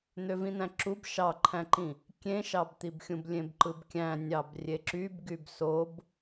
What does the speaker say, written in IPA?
n̪øvĩn̪æ̃ǁub ʃɑǃʰæ̃ǃĩ | kʲẽʃɑbt̪ibxʲũb lʲẽbǃɯbkʲæ̃ nʲɑbrʲeǁyb ɡybsob

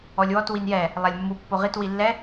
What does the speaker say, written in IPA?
ɔlʲwɔt winjɛ | lˠalʲmːu pːoʁit wilːɛ

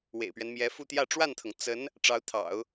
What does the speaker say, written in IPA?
wḛ˨˩ɪ̯pɥɛ˦nmjɛ˧˥ fu˥˧t̪jä˥˧ ʈ͡ʂwa˥˩nt̪ʰɤ˩ŋ t͡sə˧˥n | ʈ͡ʂɑ˧˥ʊ̯t̪ʰɑ̰˨˩˦ʊ̯

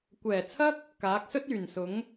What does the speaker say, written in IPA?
kʷɛː˨˩t͡sʰɐ˥k̚ | kaː˨˥k̚sɵ˥t̚ yː˨˩nsʊ˨˥ŋ

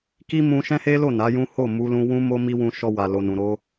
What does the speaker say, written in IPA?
ki˦mũ˧ ʃɛ̃˦he˦lo˦˨ na˨˦jũ˦ ho˦˨mu˧ lũ˧wũ˦mo˦ mi˦wũ˧ʃɔ˧ wa˨lo˨nũ˨ɾo˧

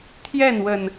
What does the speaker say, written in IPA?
t̪ʰjɛ˥˨nwə˨˩n

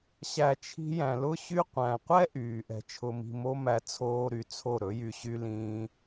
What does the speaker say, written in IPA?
ɕæ˧t͡ʃʰi̤˦ jæ̃˨lʊ˦ɕy˦ qʷæ̃˨qʷɛ˦ ʔyː˨ ʔɛ̤˧t͡ʃʰʊ˧mi̤˧ mo˦mæ˧ t͡sʰoː˦ɾy˧ t͡sʰo˦˨ɾɵ˨˦jy˧ɕy˦ lĩː˦

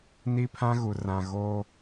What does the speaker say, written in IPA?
ni˦pʰã˦ɣu˨ rã˨ ɣoː˦

